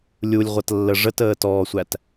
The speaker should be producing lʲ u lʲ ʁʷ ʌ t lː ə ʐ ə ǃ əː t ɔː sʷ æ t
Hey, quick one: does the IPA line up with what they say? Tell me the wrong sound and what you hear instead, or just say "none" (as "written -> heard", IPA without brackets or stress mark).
ǃ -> t